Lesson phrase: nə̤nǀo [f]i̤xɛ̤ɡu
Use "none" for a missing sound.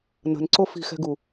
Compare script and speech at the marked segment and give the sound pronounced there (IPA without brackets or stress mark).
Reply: f